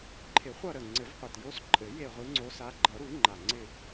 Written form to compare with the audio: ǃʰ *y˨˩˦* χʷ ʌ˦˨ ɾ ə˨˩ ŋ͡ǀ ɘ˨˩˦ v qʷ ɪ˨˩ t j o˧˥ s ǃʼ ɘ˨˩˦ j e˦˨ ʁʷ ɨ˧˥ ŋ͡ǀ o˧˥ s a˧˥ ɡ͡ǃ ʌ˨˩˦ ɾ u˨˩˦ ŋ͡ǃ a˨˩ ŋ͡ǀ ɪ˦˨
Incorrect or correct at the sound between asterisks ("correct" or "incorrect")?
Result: incorrect